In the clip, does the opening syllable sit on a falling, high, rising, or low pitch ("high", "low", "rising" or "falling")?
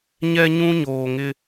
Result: high